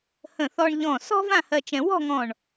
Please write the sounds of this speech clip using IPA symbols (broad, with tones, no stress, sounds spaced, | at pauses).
h ə̃˧˩ θ ɔ˧ ɳ ʎ ɔ̃˧˩ s ɔ̤˥ v ã˥˧ h ɜ˧ t͡ʃ ɛ̃˧ w ɔ̤˥˧ ŋ ɔ̃˧˩ ɳ